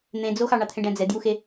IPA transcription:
n̪ ẽ d͡z o x ɑ ɳ ɑ t̪ʰ ẽ ɖ æ̃ d͡z ɛ d j u x e

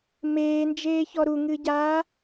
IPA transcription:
m eː n d͡ʒ eː ç ɔ ɾ u ŋ ɨ ɟ aː

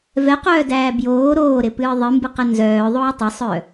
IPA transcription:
v ɛ q œː d æː b j oː ɾ oː ɾ ɪ p ɨː ðˤ ɨ m b ɨ q ɛ n z œː ðˤ oː tˤ ɪ sˤ œ

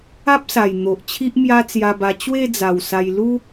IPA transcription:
a˦ p̚ s a˨˩ j n̪ o˨ ʔ t͡ɕʰ i˦ ʔ m j a˦ t͡s j a˧ b a˧ t͡ɕ w e˥˧ d͡z a˨˩ w s a˧ j l u˦

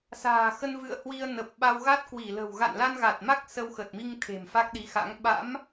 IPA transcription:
s a̤ː˨˩ x ə˧ n v ɨ̰˧˨ ə̯ h w i˧ ə̯ n ə˨˩ p̚ ɓ a˧ w ɣ a˦˥ t̚ k w i˧˩ l ə̤˨˩ w ɣ a̰˧˨ n l a˧ n ɣ a˨˩ t̚ m a˦˥ k̚ s ə˧ w x ə˨˩ t̚ m i˧ ŋ t̪ʰ e̤˨˩ m f a˦˥ k̚ ɗ i˨˦ x a̰˧˥ ŋ ɓ a̰˧˥ m

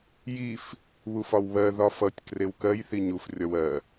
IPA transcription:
j i f | β u f ɒ w β ɜ ð ɒ f ʌ tʲ k r e w k ɜ j θ i ɲ u f rʲ ɒ w ɜ

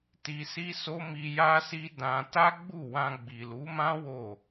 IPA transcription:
t i˧ s i˦ s o˦ m i˧ j a˦ s i˦ d ã˧ t a˦ ɡ͡b u˦˨ w ã˧ ɡ͡b i˨ l u˨˦ m ã˦ w o˦˨

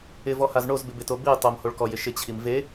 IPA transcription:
ɪ v ɔ h a z ɳ o z b ɪ b ɪ t o b i tˤ o m h o ɭ k ɔ j ɪ ʃ ɪ t͡ɕʰ i m v e

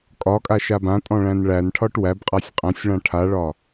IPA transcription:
kʼ ɒ kʼ a ʃ a b ã tʼ ɔ̃ ɭ æ̃ n ɭ æ n ʈʰ ɒ ʈ w æ b qʼ a sʲ qʼ æ̃ sʲ ɭ ã ʈʰ a ɭ ɒ

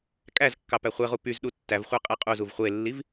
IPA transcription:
kʼ æ z kː ɑ p æ χʷ e ʁ u p y z ɗ u tː æ v χʷ æ qʼ e qʼ u z u v χʷ e lː i v

